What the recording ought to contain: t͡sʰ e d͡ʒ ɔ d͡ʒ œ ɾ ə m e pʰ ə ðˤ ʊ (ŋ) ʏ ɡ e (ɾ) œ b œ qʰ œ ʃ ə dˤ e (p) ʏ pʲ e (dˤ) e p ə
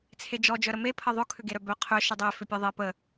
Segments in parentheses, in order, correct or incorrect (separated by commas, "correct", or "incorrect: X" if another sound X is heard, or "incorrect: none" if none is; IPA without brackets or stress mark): incorrect: kʰ, correct, incorrect: f, incorrect: ðˤ